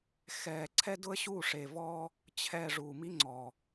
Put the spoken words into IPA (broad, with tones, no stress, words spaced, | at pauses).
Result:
xɛː˨ǀʰɛ˦dʊ˦ə̯ɕu˦˨ ʂe˨vɔ˦ | t͡ɕʰɛː˨ ʐuː˨mi˦ŋ͡ǀɔ˨